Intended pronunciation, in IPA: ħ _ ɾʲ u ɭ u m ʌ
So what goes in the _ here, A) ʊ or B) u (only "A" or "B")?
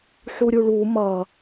B